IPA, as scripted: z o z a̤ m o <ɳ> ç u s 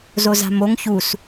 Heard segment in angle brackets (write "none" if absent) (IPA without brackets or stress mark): ŋ